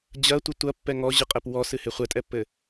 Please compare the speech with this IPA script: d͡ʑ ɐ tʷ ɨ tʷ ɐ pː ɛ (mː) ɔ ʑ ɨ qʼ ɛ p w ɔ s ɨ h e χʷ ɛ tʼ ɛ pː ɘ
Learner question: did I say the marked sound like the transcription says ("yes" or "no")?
no